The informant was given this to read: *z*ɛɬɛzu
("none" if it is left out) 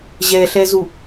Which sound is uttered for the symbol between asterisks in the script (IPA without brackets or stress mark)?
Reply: ʑ